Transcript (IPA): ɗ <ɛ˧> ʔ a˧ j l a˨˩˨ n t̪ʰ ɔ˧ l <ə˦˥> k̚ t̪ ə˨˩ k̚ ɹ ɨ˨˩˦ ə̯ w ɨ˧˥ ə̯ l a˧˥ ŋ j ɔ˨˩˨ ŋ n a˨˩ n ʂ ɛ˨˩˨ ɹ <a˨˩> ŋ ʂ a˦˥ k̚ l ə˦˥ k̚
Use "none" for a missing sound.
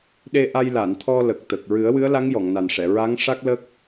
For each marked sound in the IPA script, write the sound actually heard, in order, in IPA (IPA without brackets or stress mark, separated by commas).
e˧, ə˨˩, a˧˥